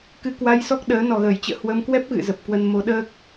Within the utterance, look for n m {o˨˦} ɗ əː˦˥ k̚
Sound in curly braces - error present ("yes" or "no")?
no